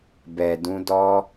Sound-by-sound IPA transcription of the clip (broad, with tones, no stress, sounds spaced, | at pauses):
b ɛ˨ d ũ˧ d ɔ˧